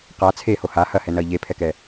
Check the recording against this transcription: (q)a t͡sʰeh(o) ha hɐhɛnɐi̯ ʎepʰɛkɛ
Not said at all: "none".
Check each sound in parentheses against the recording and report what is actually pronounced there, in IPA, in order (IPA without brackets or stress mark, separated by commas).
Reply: q, o